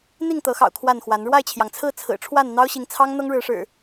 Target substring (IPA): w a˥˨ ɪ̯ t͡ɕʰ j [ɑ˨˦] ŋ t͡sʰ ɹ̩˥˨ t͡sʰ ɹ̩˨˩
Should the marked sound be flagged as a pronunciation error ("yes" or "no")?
yes